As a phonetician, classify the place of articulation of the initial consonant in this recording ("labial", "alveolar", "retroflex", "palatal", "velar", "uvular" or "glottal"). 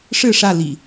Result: retroflex